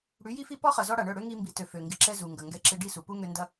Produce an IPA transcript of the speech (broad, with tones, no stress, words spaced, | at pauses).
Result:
ɽy˨˦ji˦fi˦ pɔ˦χɐ˨zɔ˧ ɽa˨ɳœ˦˨ɽø˦ ŋi˧mbi˨tø˨ fø˨ŋɡɪ˧ ǁɛ˧ zu˨ŋɡɐ˨ ŋɡɛ˧ǁɪ˧ ɖi˦˨su˨pu˦ ŋø˧ ndɐ˦